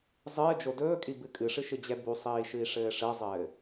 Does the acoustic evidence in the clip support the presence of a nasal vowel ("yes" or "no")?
no